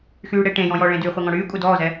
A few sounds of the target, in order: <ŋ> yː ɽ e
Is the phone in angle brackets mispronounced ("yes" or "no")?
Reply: yes